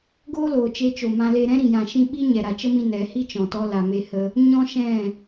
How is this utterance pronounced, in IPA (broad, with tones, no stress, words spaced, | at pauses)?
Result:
ɡoː˦loː˨t͡ʃe˧t͡ʃo˨ mã˧le˧ ɾɛ̃˦ɾĩ˨jã˨ʃĩ˧ ɓi˦ ɲɛ˨ɾa˨t͡ʃə˦mĩ˧ nɛ˨˦ hi˦t͡ʃɔ̃˨tɔ˧ la˨me˧ hə˧ | ɲɔ̃˦ʃɛ̃˦˨